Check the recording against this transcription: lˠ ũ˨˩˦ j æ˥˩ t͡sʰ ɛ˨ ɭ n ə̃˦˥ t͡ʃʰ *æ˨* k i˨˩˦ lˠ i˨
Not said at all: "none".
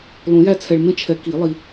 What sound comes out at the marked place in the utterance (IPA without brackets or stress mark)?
ɛ˨